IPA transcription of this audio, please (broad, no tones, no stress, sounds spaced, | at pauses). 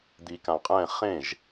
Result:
d̪ i k ã qʼ ɛ̃ χ ẽ ʒ